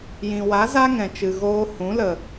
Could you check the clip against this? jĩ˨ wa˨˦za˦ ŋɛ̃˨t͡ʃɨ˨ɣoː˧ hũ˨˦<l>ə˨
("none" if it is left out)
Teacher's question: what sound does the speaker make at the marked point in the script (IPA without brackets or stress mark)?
l